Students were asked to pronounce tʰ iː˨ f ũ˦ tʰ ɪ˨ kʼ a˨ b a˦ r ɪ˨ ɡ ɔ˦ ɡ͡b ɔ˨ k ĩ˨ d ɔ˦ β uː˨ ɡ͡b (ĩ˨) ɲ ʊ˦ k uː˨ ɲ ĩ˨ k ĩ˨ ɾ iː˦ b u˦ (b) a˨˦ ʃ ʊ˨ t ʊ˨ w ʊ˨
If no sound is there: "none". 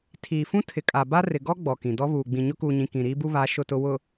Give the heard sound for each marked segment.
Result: ĩ˨, β

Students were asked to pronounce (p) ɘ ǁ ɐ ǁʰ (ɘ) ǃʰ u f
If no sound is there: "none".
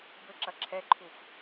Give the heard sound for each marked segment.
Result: b, ɛ

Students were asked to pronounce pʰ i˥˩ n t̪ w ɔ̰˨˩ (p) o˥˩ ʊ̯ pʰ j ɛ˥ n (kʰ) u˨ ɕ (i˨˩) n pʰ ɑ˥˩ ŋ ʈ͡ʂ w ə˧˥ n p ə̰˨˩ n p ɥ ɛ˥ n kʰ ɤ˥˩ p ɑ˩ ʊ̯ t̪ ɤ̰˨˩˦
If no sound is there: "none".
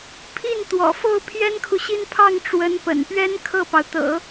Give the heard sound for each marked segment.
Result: f, kʰ, i˥˧

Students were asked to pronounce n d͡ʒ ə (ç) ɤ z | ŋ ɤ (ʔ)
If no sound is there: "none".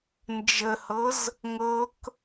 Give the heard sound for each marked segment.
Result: h, k

